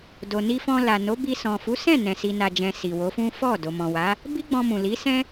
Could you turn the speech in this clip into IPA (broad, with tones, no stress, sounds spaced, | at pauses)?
d o˨ n i˧ f ɔ̃˧ l a˨ n o˨˦ b i˧ s ɔ̃˨ f u˨˦ s ɛ̃˦˨ n ɛ̃˨ s i˨ n a˨ d͡ʒ ɛ̃˨ s i˨ w o˨˦ f ũ˦ f ɔ˦˨ d o˨ m ɔ̃˨ w a˨˦ | b i˦ ɡ͡b ɔ̃˧ m ũ˨ l i˨˦ s ɛ̃˦